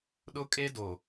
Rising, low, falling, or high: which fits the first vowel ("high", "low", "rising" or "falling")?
high